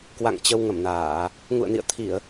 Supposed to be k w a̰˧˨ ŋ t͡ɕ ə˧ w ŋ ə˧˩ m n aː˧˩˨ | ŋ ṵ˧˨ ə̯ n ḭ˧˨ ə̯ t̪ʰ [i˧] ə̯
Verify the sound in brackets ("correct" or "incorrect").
incorrect